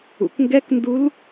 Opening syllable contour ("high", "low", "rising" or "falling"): low